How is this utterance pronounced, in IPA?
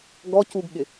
ɡ ɔ c u ɡ ɠ ɪ

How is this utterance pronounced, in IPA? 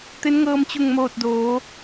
t̪ e˧˥ n ŋ ɤː˧ m t͡ɕ u˧˩ ŋ m oː˧˩ t̚ d oː˩˧

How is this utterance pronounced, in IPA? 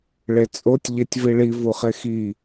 ɭ e t͡sʼ o tʲ ʎ e tʲ v i ɭ i v u χ e x i

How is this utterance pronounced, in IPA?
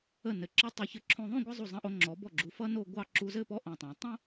ə˧˩ n ɘ˩˧ ǁ ʌ˥ tˤ ʌ˧ ç ɘ˧ ǁʰ õ˧ ðˤ õ˥˧ ɡʷ ɘ˥˧ zˤ u˧˩ zˤ ə̃˧ ʔ o˧ ŋ͡ǁ ɔ˩˧ b ɔ˧˩ ɡ͡ǁ u˩˧ f ʌ˥ n o˥˧ ɡʷ ɑ˥˧ ǁ u˧ z ɘ˥˧ p ɔ˥ ʔ õ˧˩ tˤ õ˩˧ tˤ õ˥

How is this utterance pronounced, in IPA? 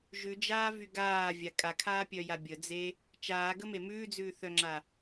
ʒ ʉ d͡ʒ aː v y ɡ aː vʲ a kʼ a kʰ aː pʲ œ j a bʲ ə d͡z e | t͡ʃ aː ɡ ə m e m ʉː d͡z ʉː θ œ ŋ͡ǁ a

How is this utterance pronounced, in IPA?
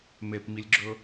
m e p m i lʲ ɡ͡ǁ ɵ

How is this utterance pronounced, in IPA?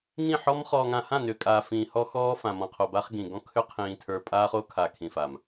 ŋ ĩ˦˨ ħ ɔ˦ m χ ɔː˨ ŋ ã˨ h ã˦˨ n ʏ˨ kʼ aː˨ f ĩː˨ h ɔ˦ x ɔː˦ f ã˨ m ɔ̃˨ qʰ o˨ b a˦ χ ɡ ĩ˨ ɡ ɔ̃˦ kʰ ʏ˦ qʰ ĩː˨ tʰ ə˞˨ pʼ aː˦ χ o˦ kʰ a˨ kʰ ĩ˨ f a˨ m

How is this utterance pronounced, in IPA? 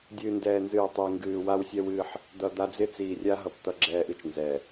dʲ ɨː˨ n d ɛː˨ n z ɨː˨ tˤ ɨː˨ ŋ ɡ ɨː˨ w a˦ w sʲ ɛ˦ w ɨ˦ ħ | d̪ ʌ˨ d̪ a˦ d͡z ɪ˦ t͡s iː˨ rʲ a˦ ɦ ʌ˨ p t̪ ʌ˦ ɡ͡ǁ ɛː˦ ʔ ɨ˦ t͡ʃ n z ɛ˨

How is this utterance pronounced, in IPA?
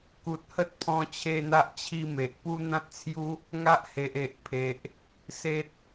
k u˨ t̚ h ə˦ t̚ pʰ ɔ̃˧ t͡ɕʰ e˥˧ n̪ a˦ ʔ t͡ɕʰ i˦ m e˨ ʔ p u˦ n̪ ã˦ t̚ t͡sʰ j u˦ | ŋ a˦ ʔ h e˨ ʔ e˨ ʔ pʰ e˨ ʔ | s e˦ t̚

